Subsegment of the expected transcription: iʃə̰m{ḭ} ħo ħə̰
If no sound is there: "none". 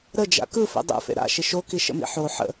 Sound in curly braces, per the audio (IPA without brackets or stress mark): ḭ